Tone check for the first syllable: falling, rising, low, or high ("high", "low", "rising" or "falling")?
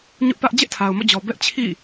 high